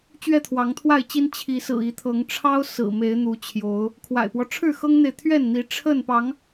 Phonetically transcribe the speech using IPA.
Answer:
t͡ɕ ɥ ɛ˥˨ t̪ʰ w ɑ˨˦ ŋ t̪ʰ w a˥˨ ɪ̯ t͡ɕ i˦ n t͡ɕʰ i˨˦ s ɹ̩˨˩ i˨˦ t̪ʰ ɤ˨˦ ŋ ʈ͡ʂʰ ɑ˦ ʊ̯ s ɹ̩˨˩ m e˨˦ ɪ̯ n̪ u˨˦ t͡ɕʰ j o˨˦ ʊ̯ | kʰ w a̰˨˩ ɪ̯ p w ɔ˦ ʈ͡ʂʰ ɻ̩˥˨ x ɤ˦ ŋ n̪ e˨ ɪ̯ t̪ʰ ɥ ɛ˥˨ n n̪ i˨˦ ʈ͡ʂʰ ə˥˨ n p ɑ˨˦ ŋ

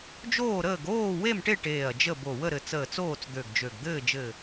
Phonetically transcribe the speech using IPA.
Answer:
d͡ʒ oː˥˨ ɾ əː˥˨ ɡ oː˥˨ w e˥˨ m ʈ e˥˨ ʈ eː˧˩ ɐ̯ d͡ʒ ə˥˨ b o˧˩ w ə˥˨ ɾ ɘ˧˩ t͡s əː˧˩ t͡s oː˥˨ t͡s d̪ ø˧˩ ɡ d͡ʒ ø˧˩ ɡ d̪ ɘː˥˨ d͡ʒ ɘː˧˩

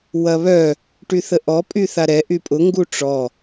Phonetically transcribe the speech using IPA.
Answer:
w ɐ β œ | ʈ y θ ə ʔ ɔ pʼ y θ a ɾ ɛ ʔ y pʼ ʊ ŋ ɡ u ʈ͡ʂ ɔ

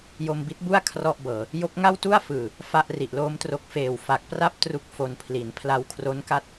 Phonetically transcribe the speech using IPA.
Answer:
j o˧ m b i˦˥ t̚ b u˥˩ a̯ kʰ r ɔ˥˩ ʔ b ɤː˨˩ | j o˦˥ k̚ ŋ a˥˩ w t u˥˩ a̯ f ɯː˨˩ | f a˥˩ ʔ r i˨˩ ʔ l oː˦˥ m t r o˦˥ k̚ f eː˨˩ w f a˨˩ k̚ p r a˥˩ p̚ t r u˥˩ k̚ f o˧ n pʰ l i˩˦ n pʰ l a˧ w kʰ r o˦˥ n k a˥˩ t̚

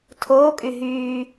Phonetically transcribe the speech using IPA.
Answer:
tʰ oː kʼ y ɦ yː

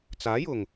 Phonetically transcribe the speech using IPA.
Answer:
t͡s aː˨˥ j ʊ˨˩ ŋ

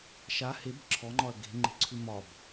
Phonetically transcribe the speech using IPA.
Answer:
ʃ a h e b ǁʰ ɔ ŋ͡ǃ ɒ ɐ̯ ɡ e̤ ŋ͡ǃ e̤ ǀʰ ʉ m ɒ b

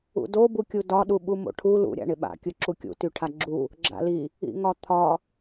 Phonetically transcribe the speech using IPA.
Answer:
ṵ d o b u kʲ u d ɒ ɗ u ɓ u m o̰ ʈʰ u l ṵ ɾʲ a̰ ɳ ɪ ɓ a̰ kʲ ɯ ǁ u kʲ ṵ t y ʈʰ a ɡ͡ǁ u | ɡ͡ǁ a̰ l i | ḭ ŋ ɒ t̪ʰ ɒ

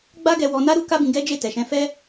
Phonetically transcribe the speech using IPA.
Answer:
ɡ͡b a˦ ɡ ɛ˧ w ɔ˧ n a˦ ɾ u˦ k a˦ b ĩ˧ ɡ ɛ˦ d͡ʒ e˦˨ t ɛ˨ ʃ ɛ̃˧ f ɛ˦

